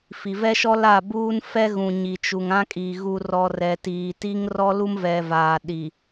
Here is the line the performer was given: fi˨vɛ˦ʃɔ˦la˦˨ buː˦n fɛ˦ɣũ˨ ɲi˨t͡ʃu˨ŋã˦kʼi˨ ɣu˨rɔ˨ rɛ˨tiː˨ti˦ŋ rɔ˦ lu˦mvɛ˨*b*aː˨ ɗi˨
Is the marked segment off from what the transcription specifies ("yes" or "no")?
yes